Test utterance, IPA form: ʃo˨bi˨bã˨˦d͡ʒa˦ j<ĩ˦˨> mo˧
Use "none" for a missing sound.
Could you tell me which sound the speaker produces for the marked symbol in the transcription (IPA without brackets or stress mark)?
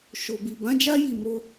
i˦˨